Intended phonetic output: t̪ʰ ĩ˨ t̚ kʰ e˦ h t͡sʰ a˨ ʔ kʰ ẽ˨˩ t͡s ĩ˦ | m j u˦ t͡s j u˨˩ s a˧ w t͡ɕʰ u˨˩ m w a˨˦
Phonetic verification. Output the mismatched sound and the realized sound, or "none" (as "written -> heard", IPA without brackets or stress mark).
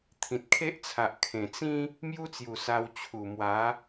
h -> ʔ